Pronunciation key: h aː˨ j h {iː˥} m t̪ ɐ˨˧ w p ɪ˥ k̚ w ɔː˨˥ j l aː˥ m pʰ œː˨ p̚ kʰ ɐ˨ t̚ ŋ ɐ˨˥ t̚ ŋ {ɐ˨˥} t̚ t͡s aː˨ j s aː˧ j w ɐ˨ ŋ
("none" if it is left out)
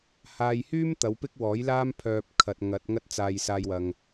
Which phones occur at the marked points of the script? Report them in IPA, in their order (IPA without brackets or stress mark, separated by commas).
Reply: yː˥, ɐ˥